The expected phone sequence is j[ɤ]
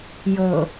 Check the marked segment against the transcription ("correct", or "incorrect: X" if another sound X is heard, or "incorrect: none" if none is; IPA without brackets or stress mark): correct